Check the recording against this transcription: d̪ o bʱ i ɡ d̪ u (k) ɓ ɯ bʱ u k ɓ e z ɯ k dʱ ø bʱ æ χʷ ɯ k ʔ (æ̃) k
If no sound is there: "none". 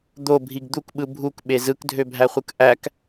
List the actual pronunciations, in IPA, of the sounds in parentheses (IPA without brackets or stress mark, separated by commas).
k, æ